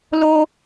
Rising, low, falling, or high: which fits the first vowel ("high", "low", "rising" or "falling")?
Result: high